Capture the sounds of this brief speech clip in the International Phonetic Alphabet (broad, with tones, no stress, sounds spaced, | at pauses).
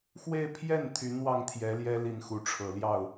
x w e˥˧ ɪ̯ pʰ j ɛ˥˩ n t̪ʰ y˧˥ n w ɑ˥˩ ŋ t̪ʰ j ɛ˧˥ l j ɛ˥ l i˥˩ n x u˧˥ ʈ͡ʂʰ ɤ˨˩ l j ɑ˥˩ ʊ̯